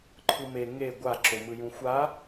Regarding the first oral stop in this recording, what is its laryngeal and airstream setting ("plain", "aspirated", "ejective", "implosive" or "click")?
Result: click